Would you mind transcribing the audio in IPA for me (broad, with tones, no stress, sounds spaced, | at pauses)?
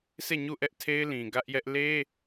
sʰ e˦˨ ɲ u˦˨ ʔ ɛ˦ ʔ tʰ e˦ ɪ̯ l ĩ˨ ɡ ä˦ ʔ j ɛ˦ ʔ l e˦